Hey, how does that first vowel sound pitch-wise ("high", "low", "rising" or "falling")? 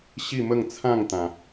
falling